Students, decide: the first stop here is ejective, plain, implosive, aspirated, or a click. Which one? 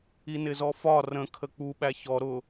aspirated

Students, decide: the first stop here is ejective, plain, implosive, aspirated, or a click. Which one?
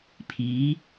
aspirated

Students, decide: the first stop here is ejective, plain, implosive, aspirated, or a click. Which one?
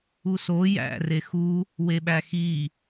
implosive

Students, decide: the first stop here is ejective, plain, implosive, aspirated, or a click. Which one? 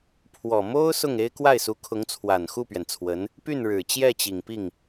aspirated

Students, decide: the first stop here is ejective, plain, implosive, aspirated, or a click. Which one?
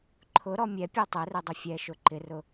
click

